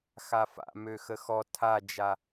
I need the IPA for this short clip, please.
xafa̰ møxəxɔ tʰad͡ʒa

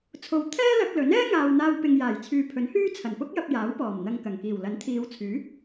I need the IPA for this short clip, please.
t͡sʰo˨wt̪ʰɛː˥lɐ˧k̚ lɵ˨˥nɛː˥ ŋaː˨wn̪aː˧wpɪ˨ŋ jaː˨˩jt͡sʰyː˨pʰɵ˨˥nhyː˥ t͡sʰɐ˨˩npʊ˥k̚jɐ˧p̚ jaː˨˥wpɔː˨˩m n̪ɐ˧ŋkɐ˨˩ŋ kiː˨˩wlɐ˨˥nt̪ʰiː˨˧wt͡sʰyː˨˥

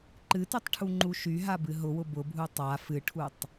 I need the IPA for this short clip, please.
ǃɨtytˤʈʰu ŋ͡ǃuʃyɦa bɨɦʊwʊ bʊbʱu tˤa fɨʈʰutˤ

